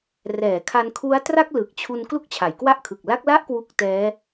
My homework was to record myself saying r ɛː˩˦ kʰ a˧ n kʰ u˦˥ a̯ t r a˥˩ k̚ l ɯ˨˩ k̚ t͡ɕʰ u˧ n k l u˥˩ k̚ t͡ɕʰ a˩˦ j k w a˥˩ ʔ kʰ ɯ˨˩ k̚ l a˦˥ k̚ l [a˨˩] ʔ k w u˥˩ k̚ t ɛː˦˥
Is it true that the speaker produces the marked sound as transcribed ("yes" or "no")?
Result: no